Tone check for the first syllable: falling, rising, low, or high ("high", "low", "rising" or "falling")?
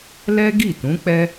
high